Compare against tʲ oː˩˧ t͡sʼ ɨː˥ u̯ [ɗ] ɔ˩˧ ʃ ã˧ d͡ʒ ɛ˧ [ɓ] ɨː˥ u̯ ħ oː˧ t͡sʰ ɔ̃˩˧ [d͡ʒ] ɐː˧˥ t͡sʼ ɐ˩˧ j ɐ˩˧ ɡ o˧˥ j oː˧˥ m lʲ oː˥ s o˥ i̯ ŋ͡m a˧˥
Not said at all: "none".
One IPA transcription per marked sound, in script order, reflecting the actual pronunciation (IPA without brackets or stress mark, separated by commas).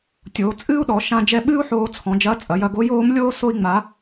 ɗ, ɓ, d͡ʒ